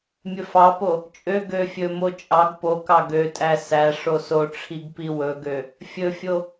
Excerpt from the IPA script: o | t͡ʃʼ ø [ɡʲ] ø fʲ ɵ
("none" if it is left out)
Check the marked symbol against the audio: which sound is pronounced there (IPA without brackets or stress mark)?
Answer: ɡ